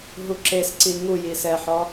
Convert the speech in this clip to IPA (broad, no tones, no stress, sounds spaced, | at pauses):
ɦ u ǁ e s ǀ i ŋ u j i s ɛ ħ ɔ